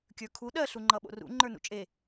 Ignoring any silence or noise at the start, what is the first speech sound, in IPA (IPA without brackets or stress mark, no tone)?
kʲ